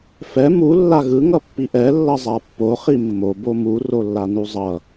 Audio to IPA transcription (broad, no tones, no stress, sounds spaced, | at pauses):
f ɛ m u lː a ɣ ɯ ŋ ʌ pː i ʔ ɛ lː ʌ zˤ a pː o χ i mː o b o m u r o lː a n u zˤ ʌ